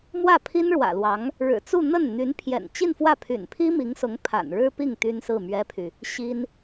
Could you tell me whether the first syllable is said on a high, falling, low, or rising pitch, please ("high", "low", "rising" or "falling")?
falling